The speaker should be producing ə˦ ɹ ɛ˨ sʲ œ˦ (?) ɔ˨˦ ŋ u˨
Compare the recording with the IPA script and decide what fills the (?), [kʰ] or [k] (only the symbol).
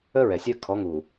kʰ